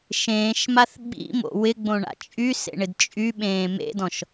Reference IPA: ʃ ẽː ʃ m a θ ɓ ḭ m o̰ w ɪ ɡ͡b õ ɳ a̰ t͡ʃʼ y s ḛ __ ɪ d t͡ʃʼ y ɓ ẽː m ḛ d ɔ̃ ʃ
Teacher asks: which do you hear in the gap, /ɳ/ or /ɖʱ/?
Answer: ɳ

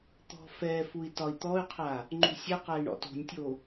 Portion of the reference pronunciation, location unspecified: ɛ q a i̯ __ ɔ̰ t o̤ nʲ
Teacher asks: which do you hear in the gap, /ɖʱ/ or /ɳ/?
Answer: ɳ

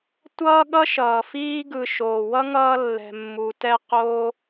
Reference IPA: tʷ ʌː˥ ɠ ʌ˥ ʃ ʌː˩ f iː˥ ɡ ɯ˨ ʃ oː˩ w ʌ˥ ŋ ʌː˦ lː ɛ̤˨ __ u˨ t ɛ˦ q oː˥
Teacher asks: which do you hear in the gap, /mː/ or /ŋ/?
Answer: mː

